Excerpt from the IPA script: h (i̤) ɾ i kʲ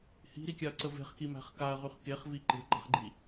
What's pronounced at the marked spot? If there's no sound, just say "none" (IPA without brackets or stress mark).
i̤